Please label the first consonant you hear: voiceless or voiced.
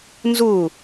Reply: voiced